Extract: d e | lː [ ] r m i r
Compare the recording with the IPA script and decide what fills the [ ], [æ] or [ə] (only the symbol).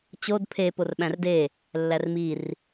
æ